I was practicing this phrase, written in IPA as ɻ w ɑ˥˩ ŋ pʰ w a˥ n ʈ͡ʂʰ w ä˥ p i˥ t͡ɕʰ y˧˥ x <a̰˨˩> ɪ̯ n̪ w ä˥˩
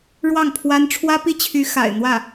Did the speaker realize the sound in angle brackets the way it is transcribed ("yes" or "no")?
yes